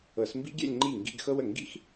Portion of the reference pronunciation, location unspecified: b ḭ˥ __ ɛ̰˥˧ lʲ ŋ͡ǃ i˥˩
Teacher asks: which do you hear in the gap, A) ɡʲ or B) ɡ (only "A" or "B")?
A